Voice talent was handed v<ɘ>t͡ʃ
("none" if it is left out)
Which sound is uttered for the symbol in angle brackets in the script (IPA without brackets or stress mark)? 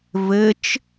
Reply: ɘ